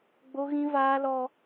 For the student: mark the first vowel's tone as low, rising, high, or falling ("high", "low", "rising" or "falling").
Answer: high